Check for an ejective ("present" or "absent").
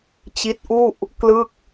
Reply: absent